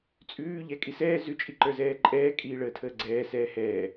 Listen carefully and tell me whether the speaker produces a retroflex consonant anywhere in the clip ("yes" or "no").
yes